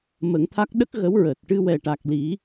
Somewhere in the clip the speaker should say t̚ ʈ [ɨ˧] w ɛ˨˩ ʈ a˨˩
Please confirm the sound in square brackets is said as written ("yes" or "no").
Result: yes